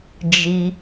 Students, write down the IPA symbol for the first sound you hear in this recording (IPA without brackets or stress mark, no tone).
d͡ʒ